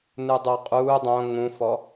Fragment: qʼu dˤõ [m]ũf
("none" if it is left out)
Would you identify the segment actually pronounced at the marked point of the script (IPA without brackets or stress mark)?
ŋ